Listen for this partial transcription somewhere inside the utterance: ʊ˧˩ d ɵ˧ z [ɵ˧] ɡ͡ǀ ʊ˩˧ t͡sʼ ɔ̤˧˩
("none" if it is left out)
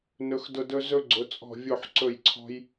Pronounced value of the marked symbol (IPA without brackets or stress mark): ɵ˧